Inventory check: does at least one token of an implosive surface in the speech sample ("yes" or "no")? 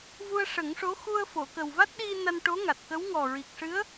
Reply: yes